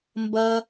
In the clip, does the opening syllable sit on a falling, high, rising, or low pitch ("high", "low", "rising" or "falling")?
high